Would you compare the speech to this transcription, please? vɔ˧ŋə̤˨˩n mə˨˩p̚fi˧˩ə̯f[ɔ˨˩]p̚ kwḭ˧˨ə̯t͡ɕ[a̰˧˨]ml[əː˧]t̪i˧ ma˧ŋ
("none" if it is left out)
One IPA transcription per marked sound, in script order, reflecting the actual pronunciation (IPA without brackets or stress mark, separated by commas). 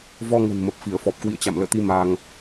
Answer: ɔ˨˩, a̰˧˨, ə̰ː˧˨